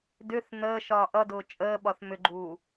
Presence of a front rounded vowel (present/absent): present